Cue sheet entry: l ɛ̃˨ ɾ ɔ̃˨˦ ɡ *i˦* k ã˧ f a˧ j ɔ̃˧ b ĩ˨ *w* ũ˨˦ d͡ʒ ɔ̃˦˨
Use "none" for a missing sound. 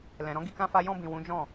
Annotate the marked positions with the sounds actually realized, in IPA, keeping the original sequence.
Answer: i˧, w

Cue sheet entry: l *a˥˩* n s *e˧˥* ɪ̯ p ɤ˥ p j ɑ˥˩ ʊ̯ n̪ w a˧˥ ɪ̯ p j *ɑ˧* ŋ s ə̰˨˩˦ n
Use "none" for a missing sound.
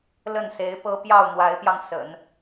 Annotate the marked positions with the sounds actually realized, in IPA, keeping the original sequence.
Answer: ə˥˩, e˧˥, ɑ˧

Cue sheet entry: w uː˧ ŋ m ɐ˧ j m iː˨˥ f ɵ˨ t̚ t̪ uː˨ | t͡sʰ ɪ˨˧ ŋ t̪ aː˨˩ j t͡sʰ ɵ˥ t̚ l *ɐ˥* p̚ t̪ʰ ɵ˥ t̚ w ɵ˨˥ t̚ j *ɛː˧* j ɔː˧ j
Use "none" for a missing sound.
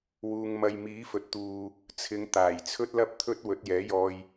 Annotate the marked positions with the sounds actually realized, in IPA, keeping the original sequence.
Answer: ɐ˥, ɛː˨˥

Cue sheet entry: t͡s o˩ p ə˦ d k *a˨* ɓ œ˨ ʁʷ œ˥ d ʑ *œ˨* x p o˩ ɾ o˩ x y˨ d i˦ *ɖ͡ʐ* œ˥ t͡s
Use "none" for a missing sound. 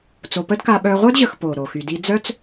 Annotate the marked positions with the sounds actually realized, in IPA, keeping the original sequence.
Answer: a˨, ə˨, d͡z

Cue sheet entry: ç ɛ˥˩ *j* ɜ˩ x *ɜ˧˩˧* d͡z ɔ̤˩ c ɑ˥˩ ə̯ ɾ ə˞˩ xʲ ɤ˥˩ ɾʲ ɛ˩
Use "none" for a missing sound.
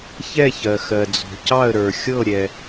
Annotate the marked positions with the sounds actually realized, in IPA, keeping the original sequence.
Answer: ç, ɜ˩

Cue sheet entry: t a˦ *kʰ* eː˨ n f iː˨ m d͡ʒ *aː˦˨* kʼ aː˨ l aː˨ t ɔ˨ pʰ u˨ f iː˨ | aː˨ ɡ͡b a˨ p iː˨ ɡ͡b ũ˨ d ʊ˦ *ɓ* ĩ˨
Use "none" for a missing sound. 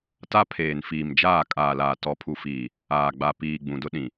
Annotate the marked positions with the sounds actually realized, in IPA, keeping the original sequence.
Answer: pʰ, aː˦˨, ɗ

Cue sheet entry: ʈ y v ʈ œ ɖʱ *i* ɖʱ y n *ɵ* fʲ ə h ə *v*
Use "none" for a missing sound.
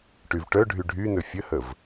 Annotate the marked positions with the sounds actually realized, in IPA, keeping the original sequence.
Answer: y, ɵ, v

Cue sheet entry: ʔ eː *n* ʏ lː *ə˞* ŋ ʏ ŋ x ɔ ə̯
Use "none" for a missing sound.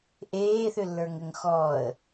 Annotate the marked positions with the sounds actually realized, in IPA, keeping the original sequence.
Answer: θ, ə˞

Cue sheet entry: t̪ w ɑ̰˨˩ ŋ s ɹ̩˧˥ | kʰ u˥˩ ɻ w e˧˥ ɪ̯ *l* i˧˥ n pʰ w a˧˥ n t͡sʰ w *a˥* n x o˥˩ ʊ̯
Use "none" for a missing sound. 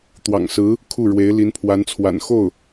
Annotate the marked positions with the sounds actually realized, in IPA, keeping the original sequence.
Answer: l, a̰˨˩

